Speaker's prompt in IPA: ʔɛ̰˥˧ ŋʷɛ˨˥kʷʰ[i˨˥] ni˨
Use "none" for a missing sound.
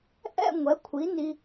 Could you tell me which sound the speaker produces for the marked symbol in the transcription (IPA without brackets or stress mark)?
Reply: i˨˥